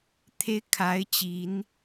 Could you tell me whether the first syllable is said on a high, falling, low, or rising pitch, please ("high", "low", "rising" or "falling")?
high